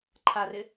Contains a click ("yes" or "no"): yes